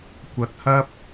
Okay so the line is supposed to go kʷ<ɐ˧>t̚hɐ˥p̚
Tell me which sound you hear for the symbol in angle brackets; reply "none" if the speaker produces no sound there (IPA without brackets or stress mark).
ɐ˧